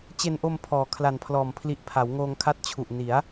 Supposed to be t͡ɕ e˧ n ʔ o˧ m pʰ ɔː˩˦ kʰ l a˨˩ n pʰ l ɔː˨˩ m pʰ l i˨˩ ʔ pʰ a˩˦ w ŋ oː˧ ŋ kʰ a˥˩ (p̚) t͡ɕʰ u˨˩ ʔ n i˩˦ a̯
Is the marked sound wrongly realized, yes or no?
yes